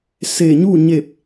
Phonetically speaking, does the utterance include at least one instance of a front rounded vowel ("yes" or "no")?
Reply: no